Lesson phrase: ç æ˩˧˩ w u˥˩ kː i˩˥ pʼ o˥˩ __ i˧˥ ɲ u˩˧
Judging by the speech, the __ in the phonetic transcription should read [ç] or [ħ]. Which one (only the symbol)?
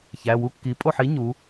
ħ